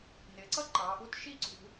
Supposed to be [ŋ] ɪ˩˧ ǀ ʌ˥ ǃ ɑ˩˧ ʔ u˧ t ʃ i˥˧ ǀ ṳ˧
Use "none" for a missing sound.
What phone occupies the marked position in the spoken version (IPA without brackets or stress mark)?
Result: n